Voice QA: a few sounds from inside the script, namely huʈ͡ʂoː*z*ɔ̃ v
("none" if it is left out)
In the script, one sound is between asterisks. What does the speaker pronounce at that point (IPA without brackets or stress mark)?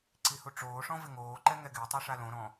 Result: ʂ